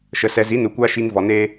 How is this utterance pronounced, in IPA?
ʃə˨ sɛ˨zi˨˦nu˨ kʷa˦ʃi˧ŋ vɔ˨neː˦

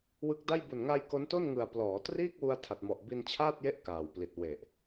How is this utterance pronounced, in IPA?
wɯ˦˥k̚da˥˩j bu˨˩nŋa˧j ko˦˥nto˥˩n ŋɯ˨˩a̯ plɔː˩˦triː˥˩k̚wu˧a̯ tʰa˨˩t̚mɔ˨˩ʔ bi˧nt͡ɕʰaː˥˩t̚je˦˥ʔ kaː˨˩wpli˨˩t̚ we˨˩ʔ

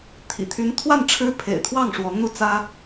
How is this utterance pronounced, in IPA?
t̪ʰḭ˨˩t̪ʰy˧˥nt̪ʰwa˥˩n ʈ͡ʂʰɻ̩˥pʰḛ˨˩ɪ̯t̪ʰwɑ˥˩ŋ ʂwɔ˧˥n̪u˥˩t͡sä˥

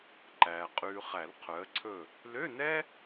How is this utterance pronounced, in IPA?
ǃæː˨ qʼʉː˨χæ˨˩˦l qʰœ˨˥ə̯ǀʰɵ˥˨ | lø˧˥˧nɛ˥

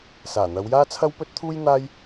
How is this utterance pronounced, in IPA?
saː˨˩n̪ɐ˨˧wjaː˥ t͡sʰɐ˥wpɵ˥t̚t̪ʰuː˥j n̪aː˥j

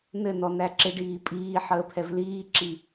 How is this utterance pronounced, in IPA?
nɘnɔ næǁɪɖiː pʼiː ħəːpʰɛvliːǁi

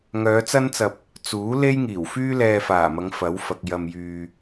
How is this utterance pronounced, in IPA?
ŋœː˨˧t͡sɐ˥nt͡sɐ˧p̚ | t͡suː˨˥ le˥jŋiː˨˩wfyː˥ lɛː˧faː˨˩mɐ˨˧ŋ fɐ˨˥wfɐ˨k̚ jɐ˧mjyː˧

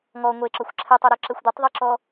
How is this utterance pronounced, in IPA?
ŋɔ ŋʷeǁɔxʷ ǁʰɛtˤoɾoǁɛxʷ d̪etˤðˤɯǁɔ

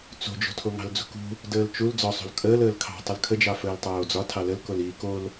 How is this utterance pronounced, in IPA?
t͡so̤d͡ʒo̤tʰo ŋɑ̤ld͡zṳkṳ | dəːlt͡ʃul d͡zɒsˤo̤l kʼəːl əːlkʰɑ̤ tˤəlkʰəd͡ʒɑ fəːltˤoːd͡zɒ tʰɑləlkoliː kol

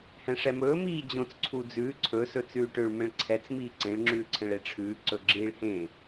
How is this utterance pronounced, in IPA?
hɛ̃ʂɛmɵː miːd͡ʑõt͡s ǀʰud͡zʉː ǀʰɵ sɵt͡sʉːʈøɭ mɛ̃ɭǀʰɛt͡s miːǀẽɭ ŋ͡ǁʉːǀʰɛ̃ɭeʈ͡ʂʰʉː ǀɵɡ͡ǁiːɭhẽ

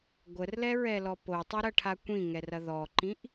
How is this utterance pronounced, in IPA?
ɡʷərlɛɹɛlɔ potˤoɾɐʈʰa kʷĩŋɛrɐ ðɔǃĩʔ

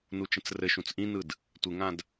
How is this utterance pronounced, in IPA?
nut͡ʃə̃t͡srɘʃũt͡s ʔĩnɯd | tʷɪŋãd

